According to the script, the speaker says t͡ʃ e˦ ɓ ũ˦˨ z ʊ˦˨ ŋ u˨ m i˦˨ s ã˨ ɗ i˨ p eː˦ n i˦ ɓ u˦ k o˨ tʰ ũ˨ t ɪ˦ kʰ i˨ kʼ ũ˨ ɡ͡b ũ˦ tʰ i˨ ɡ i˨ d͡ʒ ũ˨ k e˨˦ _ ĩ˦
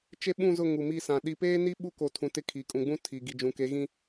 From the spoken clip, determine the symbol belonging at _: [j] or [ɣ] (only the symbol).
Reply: ɣ